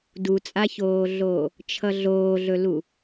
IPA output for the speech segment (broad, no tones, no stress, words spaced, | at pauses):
dut͡sʼaçoːɮoː | t͡ʃʰʌɮoːɮɵlu